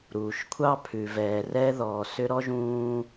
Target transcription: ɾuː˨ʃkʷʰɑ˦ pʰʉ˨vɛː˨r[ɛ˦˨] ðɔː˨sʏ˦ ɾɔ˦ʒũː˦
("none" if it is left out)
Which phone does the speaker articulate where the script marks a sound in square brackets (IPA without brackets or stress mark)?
ɛ˦